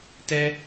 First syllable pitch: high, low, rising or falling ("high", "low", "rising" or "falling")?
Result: high